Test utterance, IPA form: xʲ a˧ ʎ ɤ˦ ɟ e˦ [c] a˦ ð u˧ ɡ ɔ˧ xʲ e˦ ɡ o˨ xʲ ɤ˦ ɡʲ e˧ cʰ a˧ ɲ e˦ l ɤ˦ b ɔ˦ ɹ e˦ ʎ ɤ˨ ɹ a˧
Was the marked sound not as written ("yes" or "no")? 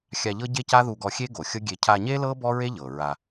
no